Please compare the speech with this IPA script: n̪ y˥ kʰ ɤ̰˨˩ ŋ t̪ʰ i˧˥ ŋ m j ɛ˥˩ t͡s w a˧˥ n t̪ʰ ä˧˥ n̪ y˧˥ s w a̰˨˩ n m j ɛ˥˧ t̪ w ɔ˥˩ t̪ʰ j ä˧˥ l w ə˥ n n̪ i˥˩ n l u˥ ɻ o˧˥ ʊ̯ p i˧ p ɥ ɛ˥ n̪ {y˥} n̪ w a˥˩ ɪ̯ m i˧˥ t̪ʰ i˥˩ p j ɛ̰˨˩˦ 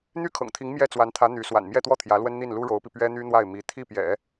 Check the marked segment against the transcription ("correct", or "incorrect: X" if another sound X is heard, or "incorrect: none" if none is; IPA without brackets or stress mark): correct